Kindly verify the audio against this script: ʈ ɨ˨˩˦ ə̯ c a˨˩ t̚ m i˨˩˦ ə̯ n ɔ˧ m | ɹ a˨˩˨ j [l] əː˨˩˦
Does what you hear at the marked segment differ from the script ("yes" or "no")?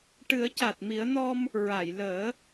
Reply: no